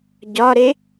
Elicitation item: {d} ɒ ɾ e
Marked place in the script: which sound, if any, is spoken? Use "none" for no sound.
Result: ɟ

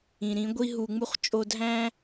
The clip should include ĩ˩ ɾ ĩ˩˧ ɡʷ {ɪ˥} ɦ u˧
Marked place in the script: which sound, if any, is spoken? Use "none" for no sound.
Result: i˥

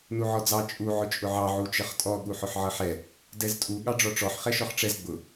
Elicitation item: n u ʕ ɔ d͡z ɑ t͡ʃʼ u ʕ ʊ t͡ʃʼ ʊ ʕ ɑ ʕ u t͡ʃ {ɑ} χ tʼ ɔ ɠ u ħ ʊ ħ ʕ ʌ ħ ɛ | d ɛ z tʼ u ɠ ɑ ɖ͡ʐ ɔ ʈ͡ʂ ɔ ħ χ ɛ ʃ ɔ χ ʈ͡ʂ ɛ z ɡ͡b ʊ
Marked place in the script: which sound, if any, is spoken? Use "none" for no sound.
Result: ʌ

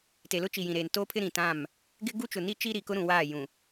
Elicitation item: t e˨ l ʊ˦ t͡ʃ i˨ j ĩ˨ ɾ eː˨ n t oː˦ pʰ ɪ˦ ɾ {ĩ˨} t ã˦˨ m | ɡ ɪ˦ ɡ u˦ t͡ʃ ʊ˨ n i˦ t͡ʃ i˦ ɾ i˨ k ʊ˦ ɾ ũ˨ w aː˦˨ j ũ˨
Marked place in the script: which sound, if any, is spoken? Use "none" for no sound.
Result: ĩ˨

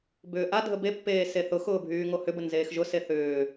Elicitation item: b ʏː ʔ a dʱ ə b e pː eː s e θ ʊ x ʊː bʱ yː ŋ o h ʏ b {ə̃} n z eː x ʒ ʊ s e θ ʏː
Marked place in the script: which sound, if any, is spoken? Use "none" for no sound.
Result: ə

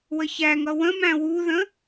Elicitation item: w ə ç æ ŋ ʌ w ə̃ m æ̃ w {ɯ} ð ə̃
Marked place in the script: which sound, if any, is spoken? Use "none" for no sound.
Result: u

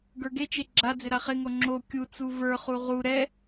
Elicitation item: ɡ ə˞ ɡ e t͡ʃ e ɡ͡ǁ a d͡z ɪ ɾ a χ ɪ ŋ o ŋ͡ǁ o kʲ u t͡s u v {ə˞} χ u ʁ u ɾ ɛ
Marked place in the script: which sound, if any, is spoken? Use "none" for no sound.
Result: ə˞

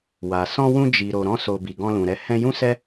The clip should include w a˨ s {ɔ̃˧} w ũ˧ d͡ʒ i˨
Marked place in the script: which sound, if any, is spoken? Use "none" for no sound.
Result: ɔ̃˧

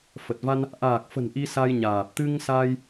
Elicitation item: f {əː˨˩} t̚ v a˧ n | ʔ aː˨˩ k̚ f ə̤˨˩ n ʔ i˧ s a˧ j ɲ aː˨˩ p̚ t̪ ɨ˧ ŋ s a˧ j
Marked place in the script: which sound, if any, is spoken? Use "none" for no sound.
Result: ə˨˩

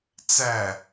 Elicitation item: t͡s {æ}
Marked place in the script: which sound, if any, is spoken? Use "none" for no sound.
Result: æ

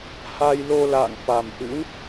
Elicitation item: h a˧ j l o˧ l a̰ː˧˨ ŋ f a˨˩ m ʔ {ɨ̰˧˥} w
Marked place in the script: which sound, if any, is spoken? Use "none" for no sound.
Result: ɨ̰˧˥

